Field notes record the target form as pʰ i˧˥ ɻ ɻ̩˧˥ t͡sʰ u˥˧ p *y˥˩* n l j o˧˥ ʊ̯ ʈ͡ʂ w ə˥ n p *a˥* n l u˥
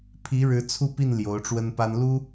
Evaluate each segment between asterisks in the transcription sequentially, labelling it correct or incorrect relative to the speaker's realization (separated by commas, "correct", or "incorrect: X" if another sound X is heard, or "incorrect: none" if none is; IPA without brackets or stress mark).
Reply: incorrect: i˥˩, correct